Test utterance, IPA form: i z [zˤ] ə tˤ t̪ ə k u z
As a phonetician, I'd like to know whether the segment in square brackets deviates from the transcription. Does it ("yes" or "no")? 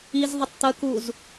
yes